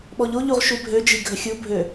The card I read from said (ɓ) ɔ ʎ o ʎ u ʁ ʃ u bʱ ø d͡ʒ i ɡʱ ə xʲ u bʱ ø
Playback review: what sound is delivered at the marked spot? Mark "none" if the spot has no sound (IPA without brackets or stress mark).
ɓ